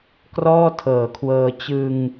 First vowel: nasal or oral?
oral